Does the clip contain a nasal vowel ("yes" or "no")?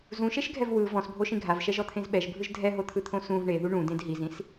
yes